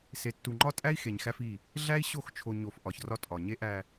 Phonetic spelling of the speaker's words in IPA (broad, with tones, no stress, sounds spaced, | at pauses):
s e˨ tː u˨ ŋ͡ǃ ɒ˦ tʼ æ˦ i̯ x e˨ ɲ x æ˦ f i˦˨ | ɮ æ˦ i̯ ɕ o˦˨ x t͡ʃʰ o˨ ɲ o˨ f ʔ ɒ˨ ç r ɒ˦ tʼ ɒ˨ ɲ e˦ ʔ æ˨